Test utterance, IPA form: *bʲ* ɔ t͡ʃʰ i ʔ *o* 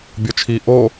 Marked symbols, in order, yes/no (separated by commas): yes, yes